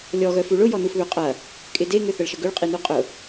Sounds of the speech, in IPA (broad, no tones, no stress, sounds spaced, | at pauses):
lʲ ɔ ɣ œ f u ɭ ʊ j ɔ n u f β ø qʼ ɐ | kʼ ɪ d e ŋ ʏ θ ə ɭ ʃ ə ɡ ʏ ɭ qʼ i n u qʼ ʊ